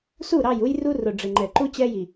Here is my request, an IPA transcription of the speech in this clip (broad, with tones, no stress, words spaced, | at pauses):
su˦˨ ɾɑ˦˨ju˦j ru˦rʊ˨ ɖ͡ʐɪ˨ŋ͡ǃɛ˨ǃu˦ t͡ɕɛ˦ji˨